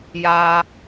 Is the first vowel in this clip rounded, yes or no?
no